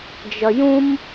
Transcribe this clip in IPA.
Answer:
d͡ʒ ʌ j ũ m

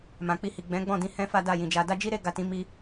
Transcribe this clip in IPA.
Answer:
m ã˨ k͡p i˧ h i˨ ɡ͡b ɛ̃˨˦ ɡ͡b ɔ̃˦˨ d ĩ˧ h ɛ̃˦ f a˦ d a˦˨ j ĩ˨ d͡ʒ a˧ d a˦ d͡ʒ i˦ ɾ e˦ ɡ a˦˨ t ĩ˨˦ m i˧

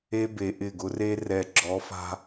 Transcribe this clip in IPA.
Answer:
e˦ b e˨ ʔ ɪ˦˨ ɡ ʊ˦ r e˦ r ɛ˨ ɡ͡ǁ ɔ˨˦ f a̤˦

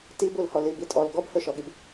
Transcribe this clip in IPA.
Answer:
t i b u l h ɔ l i b i tʼ ɔ l ɡ ɔ b h ɵ ʃ ɔ ɠ i b

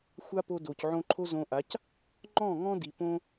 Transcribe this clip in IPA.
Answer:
xʷ a˦ p o˧ d o˨ c ʕ õ˧ ǃʰ o˦ z õ˧ ʔ a˨˦ c | ŋ͡ǃ ɔ̃˦˨ ŋ ɔ̃˦ d i˨ p õ˦

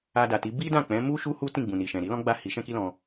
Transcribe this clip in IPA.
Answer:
a˧ d a˨ t i˨˦ b i˦ d ã˦˨ k͡p ɛ̃˨˦ m u˦ ʃ u˦ h u˦ t ĩ˦˨ ɡ͡b ũ˨ n i˨ ʃ ɛ̃˨ ɾ i˨˦ l ɔ̃˦ ɡ͡b a˦˨ h i˨˦ ʃ ɛ̃˦ k i˦ l ɔ̃˧

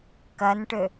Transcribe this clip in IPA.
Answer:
k ɐ n ʈ ø

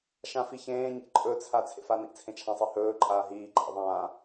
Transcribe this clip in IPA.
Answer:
ʃ ã f i ç ẽː ɲ ḛ ǃʼ ɵ t͡sʰ a t͡sʰ ḛ f a n ḭ t͡sʰ ẽ t͡ʃʰ ã sˤ i h ɵː ǃʼ aː ɦ iː ǃʼ a̰ ðˤ ãː

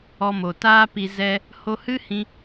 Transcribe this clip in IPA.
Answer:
ɔ˧ m o˨ t aː˦ p i˧ z ɛ˧ | h o˧ h ɨ˦ h ĩ˧

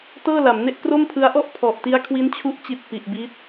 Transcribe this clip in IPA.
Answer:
t ɤː˥˩ l a˩˦ m n e˥˩ ʔ k r o˥˩ m pʰ ɯ˦˥ a̯ ʔ ɔ˥˩ ʔ pʰ ɔ˨˩ ʔ t i˦˥ a̯ kʰ w i˦˥ n t͡ɕʰ u˦˥ ʔ t͡ɕ i˨˩ t̚ p i˨˩ ʔ b i˦˥ t̚

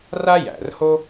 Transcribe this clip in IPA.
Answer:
r a˥ j æ̰˩ r h o˥

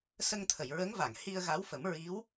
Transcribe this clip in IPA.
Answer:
s ə˧ ŋ t̪ʰ ə˨˩˨ j ɹ ə˧˥ ŋ v a˨˩˨ ŋ h i˧ ə̯ ɣ a˧˥ w f ə˨˩˦ m ɹ i˧˥ w

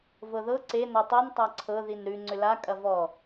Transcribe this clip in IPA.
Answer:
v ɤ ð ɤ ǀ e n ɔ tˤ o n tˤ a ǀʰ ɤ ð i n ɾ ʉ ŋ͡ǀ ʏ l a kʼ ɐ v ɔ

